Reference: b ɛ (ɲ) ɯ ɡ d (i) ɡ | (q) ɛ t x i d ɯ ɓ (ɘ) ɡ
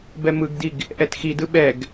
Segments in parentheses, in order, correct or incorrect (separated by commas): incorrect, correct, incorrect, incorrect